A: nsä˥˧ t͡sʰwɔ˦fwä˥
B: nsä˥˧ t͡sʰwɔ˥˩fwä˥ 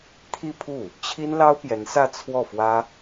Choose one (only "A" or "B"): B